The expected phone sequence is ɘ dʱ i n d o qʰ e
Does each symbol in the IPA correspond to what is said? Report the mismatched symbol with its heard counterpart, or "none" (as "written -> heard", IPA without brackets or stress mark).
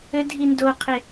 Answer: none